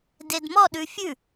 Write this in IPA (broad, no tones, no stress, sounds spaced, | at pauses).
d e d m ɔ ɗ ʉ fʲ ʉ